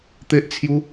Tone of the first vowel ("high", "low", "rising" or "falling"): high